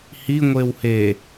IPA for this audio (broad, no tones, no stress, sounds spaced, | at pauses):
h i ŋʷ e w h e